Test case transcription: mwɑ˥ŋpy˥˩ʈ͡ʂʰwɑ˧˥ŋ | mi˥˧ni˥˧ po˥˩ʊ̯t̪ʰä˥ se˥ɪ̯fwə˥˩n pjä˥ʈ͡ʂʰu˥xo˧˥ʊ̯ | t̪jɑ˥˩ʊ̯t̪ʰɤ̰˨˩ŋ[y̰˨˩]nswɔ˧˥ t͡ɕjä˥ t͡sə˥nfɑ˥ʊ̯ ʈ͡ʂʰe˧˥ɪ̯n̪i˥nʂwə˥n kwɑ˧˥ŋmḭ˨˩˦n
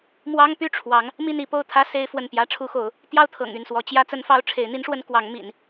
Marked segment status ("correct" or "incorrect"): incorrect